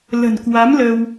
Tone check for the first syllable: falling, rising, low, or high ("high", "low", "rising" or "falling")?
low